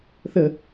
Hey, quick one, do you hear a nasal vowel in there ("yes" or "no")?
no